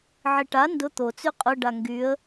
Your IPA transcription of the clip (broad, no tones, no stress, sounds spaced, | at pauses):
ʕ i ʈ a n d ʊ t̪ o t͡s y qʼ ʊ ɖ a ŋ ɡ y ə̯